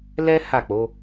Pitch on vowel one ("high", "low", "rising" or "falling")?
high